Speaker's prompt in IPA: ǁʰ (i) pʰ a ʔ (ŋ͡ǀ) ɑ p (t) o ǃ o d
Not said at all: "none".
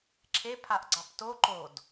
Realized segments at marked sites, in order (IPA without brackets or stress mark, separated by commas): e, ɡ͡ǀ, t